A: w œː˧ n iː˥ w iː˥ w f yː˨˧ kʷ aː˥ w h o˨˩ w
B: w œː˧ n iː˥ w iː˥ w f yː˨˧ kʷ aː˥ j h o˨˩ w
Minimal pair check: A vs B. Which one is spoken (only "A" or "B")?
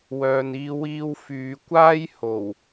B